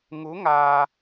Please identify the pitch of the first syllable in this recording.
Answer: rising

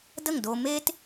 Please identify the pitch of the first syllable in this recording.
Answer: falling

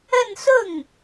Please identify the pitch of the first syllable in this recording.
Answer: falling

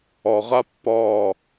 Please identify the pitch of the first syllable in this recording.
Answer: low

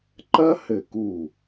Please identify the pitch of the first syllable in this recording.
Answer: high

